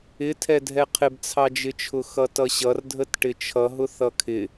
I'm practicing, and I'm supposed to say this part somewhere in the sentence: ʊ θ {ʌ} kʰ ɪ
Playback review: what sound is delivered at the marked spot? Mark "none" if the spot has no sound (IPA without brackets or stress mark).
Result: ʌ